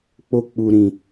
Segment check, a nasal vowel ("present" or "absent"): present